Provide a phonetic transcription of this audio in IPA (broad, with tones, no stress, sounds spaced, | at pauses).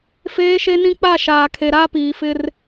f eː˦ ʃ e˦ n ĩ˦ k͡p a˦˨ ʃ aː˨ kʰ e˨ ɾ a˦ p iː˨ f ɪ˦ r